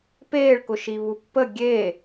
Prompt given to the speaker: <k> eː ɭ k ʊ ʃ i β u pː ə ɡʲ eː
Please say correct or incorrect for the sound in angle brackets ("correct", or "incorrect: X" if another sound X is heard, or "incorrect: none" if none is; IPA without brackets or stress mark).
incorrect: p